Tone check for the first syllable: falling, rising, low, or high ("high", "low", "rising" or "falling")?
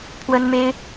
high